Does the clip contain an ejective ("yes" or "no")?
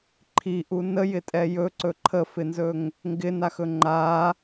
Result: yes